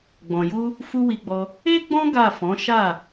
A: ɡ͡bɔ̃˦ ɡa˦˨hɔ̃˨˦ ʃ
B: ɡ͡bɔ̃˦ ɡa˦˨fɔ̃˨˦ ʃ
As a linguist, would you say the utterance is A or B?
B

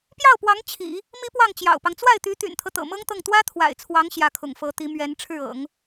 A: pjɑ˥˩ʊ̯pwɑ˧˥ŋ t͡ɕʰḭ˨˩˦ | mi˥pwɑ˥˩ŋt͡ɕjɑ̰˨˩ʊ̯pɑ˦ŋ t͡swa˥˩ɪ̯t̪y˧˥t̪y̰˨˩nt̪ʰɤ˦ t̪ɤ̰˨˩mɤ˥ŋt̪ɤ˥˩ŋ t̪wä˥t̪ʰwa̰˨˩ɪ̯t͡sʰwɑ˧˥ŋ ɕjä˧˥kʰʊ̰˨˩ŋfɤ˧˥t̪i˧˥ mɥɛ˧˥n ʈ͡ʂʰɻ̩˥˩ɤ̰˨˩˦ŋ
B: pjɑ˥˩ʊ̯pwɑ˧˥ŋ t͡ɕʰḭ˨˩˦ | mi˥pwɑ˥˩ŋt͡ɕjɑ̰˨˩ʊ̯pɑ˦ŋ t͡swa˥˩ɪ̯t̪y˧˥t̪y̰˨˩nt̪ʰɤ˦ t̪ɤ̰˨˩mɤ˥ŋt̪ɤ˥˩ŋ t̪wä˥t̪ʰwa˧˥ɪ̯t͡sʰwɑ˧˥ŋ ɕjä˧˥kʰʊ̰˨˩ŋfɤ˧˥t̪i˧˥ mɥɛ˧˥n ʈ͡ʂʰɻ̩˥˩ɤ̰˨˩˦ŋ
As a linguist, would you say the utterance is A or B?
A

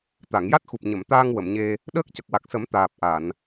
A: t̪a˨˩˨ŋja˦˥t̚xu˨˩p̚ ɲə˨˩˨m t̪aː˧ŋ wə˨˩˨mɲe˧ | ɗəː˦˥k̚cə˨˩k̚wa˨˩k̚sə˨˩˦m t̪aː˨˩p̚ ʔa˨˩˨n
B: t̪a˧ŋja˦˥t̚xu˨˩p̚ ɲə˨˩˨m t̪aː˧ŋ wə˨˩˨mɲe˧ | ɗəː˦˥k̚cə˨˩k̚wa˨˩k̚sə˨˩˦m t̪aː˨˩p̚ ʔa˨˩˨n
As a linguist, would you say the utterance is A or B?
A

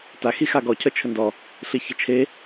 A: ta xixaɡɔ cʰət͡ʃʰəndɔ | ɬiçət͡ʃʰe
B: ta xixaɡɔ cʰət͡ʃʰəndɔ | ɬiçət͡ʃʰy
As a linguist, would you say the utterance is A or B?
A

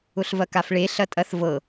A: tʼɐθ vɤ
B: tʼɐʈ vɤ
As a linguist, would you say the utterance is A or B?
A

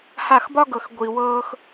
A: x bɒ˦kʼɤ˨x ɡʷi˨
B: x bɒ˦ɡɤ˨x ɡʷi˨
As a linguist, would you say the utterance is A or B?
B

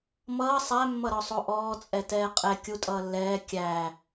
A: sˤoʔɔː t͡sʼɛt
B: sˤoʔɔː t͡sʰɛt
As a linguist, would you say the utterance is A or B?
A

